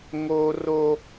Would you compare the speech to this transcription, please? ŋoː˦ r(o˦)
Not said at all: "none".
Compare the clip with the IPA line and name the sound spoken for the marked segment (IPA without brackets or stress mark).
o˦